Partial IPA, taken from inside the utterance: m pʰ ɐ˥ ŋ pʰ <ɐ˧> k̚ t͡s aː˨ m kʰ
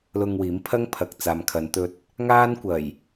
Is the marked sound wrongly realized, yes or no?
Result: yes